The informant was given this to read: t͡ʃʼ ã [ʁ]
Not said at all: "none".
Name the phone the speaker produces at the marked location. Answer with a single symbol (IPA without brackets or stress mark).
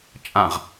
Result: ʁ